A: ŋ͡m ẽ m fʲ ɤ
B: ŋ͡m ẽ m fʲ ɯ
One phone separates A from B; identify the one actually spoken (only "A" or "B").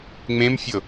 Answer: A